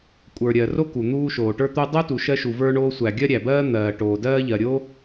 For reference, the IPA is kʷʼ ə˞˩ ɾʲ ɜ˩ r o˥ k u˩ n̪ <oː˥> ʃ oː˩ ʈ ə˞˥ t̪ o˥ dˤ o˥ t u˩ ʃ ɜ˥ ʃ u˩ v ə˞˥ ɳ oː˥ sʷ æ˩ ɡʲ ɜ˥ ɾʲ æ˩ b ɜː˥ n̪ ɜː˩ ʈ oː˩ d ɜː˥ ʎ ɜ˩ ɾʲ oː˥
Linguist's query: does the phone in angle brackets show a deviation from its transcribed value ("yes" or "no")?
yes